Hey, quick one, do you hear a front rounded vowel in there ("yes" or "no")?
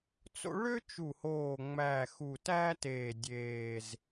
yes